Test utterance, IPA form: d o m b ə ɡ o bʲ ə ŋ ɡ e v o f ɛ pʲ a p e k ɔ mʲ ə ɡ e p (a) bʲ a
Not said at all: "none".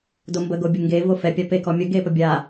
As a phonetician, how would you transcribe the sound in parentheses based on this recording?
ə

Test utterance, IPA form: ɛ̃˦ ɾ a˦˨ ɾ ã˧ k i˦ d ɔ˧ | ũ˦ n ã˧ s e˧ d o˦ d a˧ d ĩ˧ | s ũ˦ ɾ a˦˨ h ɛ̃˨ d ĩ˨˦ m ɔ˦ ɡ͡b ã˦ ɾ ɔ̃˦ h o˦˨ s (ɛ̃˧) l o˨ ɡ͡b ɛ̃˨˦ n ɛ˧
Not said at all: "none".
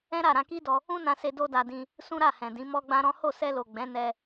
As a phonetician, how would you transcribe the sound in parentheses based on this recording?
ɛ˧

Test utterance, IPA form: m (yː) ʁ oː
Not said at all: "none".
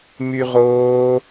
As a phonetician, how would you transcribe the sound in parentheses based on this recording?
y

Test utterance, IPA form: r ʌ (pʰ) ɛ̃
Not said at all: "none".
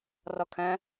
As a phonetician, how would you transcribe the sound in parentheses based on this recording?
kʰ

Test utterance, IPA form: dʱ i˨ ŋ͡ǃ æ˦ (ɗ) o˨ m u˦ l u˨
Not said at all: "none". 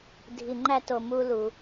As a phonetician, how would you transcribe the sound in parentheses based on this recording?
t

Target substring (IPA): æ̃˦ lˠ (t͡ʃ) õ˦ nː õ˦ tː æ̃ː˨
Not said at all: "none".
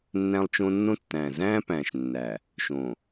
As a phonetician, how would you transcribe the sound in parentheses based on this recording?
t͡ʃ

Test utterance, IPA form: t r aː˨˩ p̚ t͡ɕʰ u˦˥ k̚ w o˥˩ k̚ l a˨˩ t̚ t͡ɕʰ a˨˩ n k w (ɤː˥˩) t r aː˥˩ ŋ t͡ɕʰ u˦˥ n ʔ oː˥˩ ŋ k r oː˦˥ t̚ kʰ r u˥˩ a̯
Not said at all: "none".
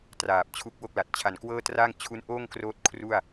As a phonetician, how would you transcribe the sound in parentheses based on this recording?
ɤː˥˩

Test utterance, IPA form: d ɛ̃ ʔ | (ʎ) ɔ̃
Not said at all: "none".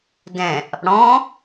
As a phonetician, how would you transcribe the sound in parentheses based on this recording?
ɽ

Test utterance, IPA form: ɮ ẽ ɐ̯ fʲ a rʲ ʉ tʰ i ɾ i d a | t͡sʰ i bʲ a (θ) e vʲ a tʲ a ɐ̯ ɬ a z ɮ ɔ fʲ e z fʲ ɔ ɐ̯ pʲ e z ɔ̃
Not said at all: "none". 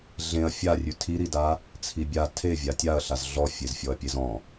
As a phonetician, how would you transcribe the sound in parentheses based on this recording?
tʰ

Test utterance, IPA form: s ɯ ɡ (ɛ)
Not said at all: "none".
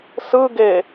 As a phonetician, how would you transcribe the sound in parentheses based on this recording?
e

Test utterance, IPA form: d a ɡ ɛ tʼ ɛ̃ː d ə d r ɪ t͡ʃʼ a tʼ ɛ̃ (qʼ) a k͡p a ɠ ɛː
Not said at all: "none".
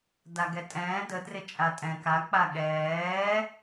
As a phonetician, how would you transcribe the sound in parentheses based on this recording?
k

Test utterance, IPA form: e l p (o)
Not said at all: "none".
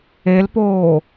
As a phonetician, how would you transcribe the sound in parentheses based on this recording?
oː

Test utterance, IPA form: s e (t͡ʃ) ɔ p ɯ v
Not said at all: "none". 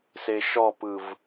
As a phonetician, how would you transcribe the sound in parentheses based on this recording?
ʃ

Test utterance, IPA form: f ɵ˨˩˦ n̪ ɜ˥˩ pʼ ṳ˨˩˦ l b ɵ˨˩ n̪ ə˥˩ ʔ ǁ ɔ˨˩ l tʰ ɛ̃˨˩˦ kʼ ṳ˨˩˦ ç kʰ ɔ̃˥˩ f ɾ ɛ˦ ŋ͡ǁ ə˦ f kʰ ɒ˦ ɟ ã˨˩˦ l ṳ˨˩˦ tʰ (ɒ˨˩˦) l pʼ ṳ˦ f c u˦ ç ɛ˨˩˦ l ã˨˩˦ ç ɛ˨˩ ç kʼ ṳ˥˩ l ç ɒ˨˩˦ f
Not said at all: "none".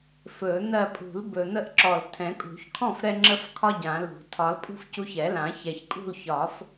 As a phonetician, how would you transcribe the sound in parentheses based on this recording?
ɒ˨˩˦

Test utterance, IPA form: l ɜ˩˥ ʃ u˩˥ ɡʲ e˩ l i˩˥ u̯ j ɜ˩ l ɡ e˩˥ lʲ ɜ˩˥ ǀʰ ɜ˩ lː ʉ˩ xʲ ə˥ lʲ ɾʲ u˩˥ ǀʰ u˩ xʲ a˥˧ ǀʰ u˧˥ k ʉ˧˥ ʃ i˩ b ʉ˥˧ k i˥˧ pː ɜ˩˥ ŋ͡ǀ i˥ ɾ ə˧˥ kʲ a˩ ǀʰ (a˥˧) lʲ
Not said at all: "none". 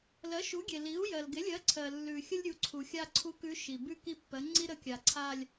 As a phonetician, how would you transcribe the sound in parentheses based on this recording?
a˥˧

